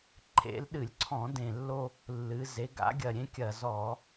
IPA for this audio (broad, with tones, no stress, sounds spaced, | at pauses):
ǃʰ ḛ˩˧ l ɗ ɨ˧˩˧ lʲ ǀʰ ɔ̃˧˩˧ d ẽ˨˩ lː o˧ | lː ɨ˩˧ z e˩˧ ɡ a̰˩˧ ɡʲ ɐ˨˩ ɾʲ ẽ˧ kʲ ɐ˨˩ z ɔ˧˩˧